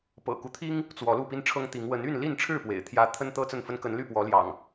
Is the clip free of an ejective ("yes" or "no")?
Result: yes